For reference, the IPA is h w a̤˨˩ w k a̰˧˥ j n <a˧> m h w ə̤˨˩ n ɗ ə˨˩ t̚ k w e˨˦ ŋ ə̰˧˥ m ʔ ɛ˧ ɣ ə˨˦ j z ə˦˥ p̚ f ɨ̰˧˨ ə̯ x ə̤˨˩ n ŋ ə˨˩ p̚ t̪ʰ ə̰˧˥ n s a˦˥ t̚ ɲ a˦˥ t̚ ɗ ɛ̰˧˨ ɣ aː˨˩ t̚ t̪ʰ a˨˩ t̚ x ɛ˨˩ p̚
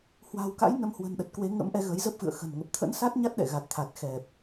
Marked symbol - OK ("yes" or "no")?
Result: no